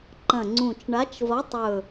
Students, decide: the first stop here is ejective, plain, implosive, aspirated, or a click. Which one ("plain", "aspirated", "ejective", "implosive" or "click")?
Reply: click